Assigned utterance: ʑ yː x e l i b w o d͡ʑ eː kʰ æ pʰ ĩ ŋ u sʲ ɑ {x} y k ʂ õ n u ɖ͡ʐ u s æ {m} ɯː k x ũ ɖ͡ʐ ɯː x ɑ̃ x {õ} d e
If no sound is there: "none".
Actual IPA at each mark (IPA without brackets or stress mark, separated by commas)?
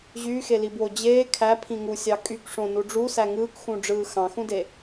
kʼ, ŋ, ũ